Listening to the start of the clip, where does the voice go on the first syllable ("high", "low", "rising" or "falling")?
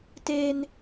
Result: high